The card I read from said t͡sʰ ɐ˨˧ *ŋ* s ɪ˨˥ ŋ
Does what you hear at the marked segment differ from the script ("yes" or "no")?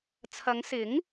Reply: no